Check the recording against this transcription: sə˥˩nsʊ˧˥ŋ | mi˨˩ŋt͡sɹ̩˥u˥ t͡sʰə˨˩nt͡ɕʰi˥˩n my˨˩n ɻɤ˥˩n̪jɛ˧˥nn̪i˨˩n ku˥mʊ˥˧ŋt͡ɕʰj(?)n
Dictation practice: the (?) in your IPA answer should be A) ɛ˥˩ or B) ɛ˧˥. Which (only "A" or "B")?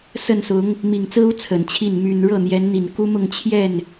A